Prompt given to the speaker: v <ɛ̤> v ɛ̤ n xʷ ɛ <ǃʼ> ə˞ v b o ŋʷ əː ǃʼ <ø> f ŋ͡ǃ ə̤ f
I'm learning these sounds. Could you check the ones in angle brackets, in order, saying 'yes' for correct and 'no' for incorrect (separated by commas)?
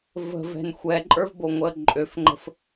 no, yes, yes